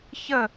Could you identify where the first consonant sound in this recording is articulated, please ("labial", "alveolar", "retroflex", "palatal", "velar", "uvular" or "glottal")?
palatal